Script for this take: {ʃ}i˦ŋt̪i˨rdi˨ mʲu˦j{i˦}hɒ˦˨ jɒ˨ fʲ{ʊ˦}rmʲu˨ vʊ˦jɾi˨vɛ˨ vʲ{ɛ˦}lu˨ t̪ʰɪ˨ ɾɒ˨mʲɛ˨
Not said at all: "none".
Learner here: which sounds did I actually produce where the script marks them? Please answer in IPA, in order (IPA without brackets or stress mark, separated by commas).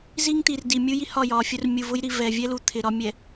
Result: z, i˦, ʊ˦, ɛ˦